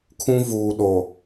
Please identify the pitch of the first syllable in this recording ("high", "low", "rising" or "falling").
high